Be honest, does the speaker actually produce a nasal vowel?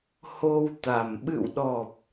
no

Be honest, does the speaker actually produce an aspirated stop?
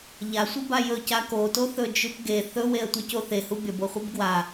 no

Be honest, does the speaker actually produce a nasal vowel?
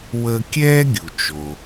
no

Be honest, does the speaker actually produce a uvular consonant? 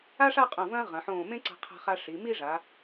yes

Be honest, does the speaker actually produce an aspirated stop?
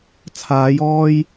yes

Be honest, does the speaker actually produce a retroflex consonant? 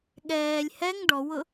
yes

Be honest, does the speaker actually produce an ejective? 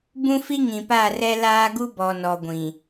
no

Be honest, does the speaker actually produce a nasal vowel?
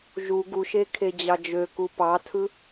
no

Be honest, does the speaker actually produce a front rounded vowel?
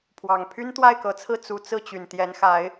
yes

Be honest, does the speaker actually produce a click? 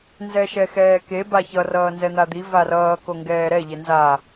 no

